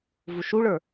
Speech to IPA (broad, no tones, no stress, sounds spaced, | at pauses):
v u ʃ u ɭ ə˞